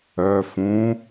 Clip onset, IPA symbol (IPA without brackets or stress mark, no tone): œ